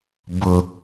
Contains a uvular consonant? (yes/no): no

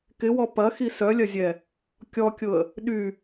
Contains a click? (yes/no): no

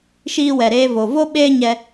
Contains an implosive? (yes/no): yes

